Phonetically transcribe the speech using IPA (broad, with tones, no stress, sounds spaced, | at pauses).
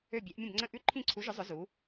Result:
ø˥˧ bʲ ɛ˧˥ ʔ mʲ ə̃˥˧ b ŋ͡ǀ ə̃˥˧ ʔ ʉ˥˧ ǃʰ ĩ˥˧ ǀʰ u˧˥ ʒ ʊ˧˥ zˤ ʊ˧˥ z u˧˥